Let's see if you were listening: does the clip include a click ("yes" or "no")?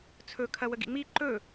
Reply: yes